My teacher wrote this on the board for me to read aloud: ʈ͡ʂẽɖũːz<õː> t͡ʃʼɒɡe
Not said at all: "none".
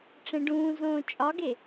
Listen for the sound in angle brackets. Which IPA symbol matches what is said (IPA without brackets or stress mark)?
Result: õː